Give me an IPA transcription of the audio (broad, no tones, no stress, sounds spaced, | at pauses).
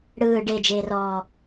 ɽ ɯː ɖ e d͡ʒ eː r ɔː